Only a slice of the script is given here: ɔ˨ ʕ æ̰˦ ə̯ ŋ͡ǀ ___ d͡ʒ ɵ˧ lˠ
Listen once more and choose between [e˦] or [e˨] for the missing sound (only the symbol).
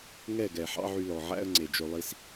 e˨